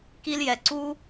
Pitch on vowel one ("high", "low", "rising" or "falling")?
high